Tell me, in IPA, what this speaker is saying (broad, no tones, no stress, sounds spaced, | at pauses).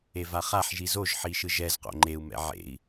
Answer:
e v a χ a ħ ʒ i z o ʒ ħ i ʃ ɯ ʒ ɛ z q o̰ ŋ͡ǃ e u̯ m ɛ̰ ʕ ḛ i̯